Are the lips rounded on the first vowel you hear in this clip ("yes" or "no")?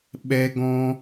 no